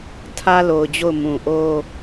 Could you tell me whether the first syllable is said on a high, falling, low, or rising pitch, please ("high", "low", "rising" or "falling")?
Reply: high